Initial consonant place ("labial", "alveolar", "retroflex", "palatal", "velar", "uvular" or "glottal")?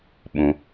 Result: labial